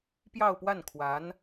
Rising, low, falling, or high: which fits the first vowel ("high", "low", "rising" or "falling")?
falling